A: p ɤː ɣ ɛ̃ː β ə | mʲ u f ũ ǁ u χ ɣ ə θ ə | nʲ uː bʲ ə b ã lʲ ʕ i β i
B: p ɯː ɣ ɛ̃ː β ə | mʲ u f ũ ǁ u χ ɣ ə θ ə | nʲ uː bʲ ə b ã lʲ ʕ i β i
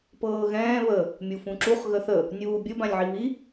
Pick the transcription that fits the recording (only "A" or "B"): A